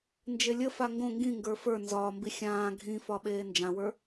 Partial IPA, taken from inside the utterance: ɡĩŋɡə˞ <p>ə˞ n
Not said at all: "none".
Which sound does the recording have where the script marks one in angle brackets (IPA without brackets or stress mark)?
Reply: f